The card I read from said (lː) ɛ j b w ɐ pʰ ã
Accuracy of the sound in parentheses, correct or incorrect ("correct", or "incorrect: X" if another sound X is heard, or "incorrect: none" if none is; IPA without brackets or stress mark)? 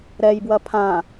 incorrect: ɾ